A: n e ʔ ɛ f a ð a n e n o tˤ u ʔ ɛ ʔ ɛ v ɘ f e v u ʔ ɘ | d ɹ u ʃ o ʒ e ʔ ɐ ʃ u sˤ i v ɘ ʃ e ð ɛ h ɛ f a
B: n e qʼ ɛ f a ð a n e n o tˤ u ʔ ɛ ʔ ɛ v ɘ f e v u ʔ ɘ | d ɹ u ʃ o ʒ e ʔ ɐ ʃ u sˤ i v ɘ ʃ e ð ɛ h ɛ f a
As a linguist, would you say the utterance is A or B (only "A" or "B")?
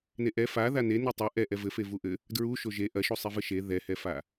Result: A